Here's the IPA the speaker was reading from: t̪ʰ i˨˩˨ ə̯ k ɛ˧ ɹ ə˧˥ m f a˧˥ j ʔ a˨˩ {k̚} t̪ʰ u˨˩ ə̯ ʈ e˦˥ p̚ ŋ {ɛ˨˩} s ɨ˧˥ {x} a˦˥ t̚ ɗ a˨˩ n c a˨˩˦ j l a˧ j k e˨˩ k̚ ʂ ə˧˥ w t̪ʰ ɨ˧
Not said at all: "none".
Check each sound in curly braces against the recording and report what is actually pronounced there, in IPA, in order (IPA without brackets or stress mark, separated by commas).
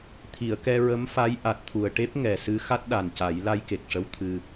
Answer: t̚, ɛ˨˩, x